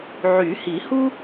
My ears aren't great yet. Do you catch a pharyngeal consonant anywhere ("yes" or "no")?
yes